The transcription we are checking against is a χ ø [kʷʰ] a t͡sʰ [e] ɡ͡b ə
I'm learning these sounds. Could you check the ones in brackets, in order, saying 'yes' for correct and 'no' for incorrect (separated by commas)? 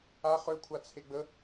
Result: yes, yes